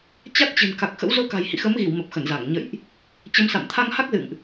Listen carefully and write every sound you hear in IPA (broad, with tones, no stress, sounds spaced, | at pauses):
t͡ɕ a˦˥ t̚ t͡ɕ ɨ̤˨˩ n k a˨˩ k̚ x ə̰˧˥ w z o˧ k a̤˨˩ j h ḭ˧˨ x ə˨˦ m ɣ i˧˩ w m ə˨˩ p̚ x ə˧˩ n z a˧˩ ŋ ɲ ə̰˧˨ j ʔ | t͡ɕ ə˧ m s a̰˧˨ m t̪ʰ a˧ ŋ h a˦˥ k̚ z ɨ̰˧˨ ŋ ʔ